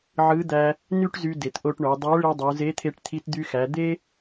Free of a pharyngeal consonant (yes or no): no